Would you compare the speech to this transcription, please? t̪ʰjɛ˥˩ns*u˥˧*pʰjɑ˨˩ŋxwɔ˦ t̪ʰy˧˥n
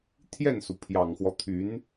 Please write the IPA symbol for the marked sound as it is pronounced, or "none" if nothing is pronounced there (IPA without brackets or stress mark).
u˩